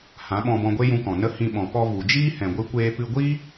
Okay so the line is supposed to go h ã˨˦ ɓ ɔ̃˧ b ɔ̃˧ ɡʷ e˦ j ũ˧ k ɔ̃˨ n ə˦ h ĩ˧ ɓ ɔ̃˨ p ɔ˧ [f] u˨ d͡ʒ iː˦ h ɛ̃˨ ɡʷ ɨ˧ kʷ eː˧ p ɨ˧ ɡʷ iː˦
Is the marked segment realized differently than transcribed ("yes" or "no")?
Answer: yes